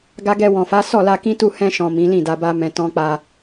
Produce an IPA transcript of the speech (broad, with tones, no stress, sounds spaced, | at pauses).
ɡ a˧ ɡ ɛ˧ w ɔ̃˨ f a˨˦ s ɔ˦˨ l a˧ k ĩ˦ t u˦˨ h ɛ̃˧ ʃ ɔ̃˨ m ĩ˨˦ l ĩ˦˨ d a˧ b a˦ m ɛ̃˧ t ɔ̃˦ k͡p a˧